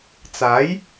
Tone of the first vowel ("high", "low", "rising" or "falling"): rising